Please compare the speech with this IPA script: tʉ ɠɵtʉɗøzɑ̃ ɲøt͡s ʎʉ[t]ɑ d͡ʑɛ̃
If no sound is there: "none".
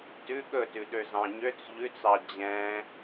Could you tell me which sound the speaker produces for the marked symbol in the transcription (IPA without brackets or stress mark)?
t͡s